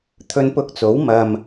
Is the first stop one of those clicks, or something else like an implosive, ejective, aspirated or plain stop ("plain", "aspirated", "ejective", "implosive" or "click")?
aspirated